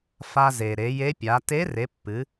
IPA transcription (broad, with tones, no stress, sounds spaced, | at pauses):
f a˧ z e˩ ɾ e˩˧ j e˧˥ pʲ a˩˧ t e˧˥ r e˩˧ pː ɨ˩˧